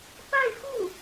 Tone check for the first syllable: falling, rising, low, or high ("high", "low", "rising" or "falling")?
falling